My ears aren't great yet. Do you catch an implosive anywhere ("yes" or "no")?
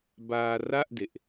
no